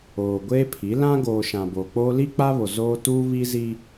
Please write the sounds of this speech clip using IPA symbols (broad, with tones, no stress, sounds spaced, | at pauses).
oː˨ ɡʷ eː˦ pʰ i˨˦ l ã˦ ɡ oː˨ ʃ ã˨ b oː˨ k͡p oː˦ l i˦ k͡p a˦ β o˨ z oː˦ t uː˦ β i˦ z i˦